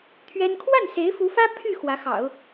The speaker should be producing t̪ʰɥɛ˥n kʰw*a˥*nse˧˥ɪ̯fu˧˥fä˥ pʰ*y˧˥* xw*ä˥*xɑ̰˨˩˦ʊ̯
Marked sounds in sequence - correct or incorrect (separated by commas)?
incorrect, incorrect, incorrect